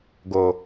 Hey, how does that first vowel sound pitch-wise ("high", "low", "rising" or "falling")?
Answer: low